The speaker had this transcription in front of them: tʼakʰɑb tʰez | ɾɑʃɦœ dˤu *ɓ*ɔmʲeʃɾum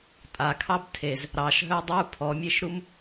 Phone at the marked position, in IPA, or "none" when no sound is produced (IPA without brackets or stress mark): pʰ